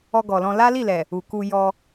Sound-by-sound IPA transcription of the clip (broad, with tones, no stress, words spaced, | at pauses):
ɔ˧ɡɔ˨lɔ̃˧ la˦li˦˨lɛ˨ | u˨ku˧ jɔ˧